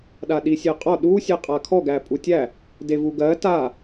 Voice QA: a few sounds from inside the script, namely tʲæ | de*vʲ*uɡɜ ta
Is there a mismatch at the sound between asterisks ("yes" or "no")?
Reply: yes